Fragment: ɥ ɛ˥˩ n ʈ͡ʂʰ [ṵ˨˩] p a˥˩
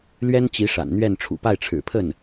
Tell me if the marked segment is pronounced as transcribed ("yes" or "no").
yes